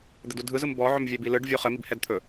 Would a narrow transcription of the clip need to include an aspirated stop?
yes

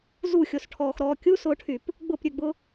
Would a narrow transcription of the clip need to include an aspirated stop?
yes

